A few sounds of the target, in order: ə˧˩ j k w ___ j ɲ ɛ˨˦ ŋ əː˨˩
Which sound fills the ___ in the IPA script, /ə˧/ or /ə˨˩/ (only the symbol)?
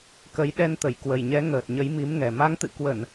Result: ə˨˩